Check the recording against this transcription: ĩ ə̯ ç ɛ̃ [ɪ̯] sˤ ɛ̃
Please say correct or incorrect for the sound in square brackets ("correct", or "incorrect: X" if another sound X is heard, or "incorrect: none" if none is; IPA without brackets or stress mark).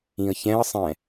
incorrect: ə̯